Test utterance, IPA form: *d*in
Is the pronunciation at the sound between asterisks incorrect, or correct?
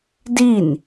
correct